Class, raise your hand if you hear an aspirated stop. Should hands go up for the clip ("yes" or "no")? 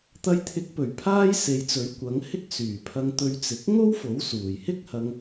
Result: yes